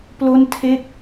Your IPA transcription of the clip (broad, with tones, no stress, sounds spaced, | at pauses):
p l o˥˩ n tʰ e˥˩ k̚